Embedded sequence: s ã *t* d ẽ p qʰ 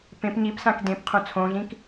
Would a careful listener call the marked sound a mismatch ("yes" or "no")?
yes